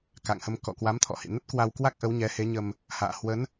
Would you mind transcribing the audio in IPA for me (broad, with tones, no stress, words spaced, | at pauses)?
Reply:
ka̰˧˨ŋhə˧m kɔ̰˧˨kwa˨˦mt̪ʰɔ̰˧˨hḭ˧˨ nə˦˥t̚kwa˧wkwa˦˥k̚ʔə˨˦w ɲɛ˨˦he˨˦ɲə˧m | ha̰ː˧˨hwə˨˦n